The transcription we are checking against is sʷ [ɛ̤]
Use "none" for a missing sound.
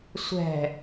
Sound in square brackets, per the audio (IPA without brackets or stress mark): ɛ̤